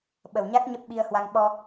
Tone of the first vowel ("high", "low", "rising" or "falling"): low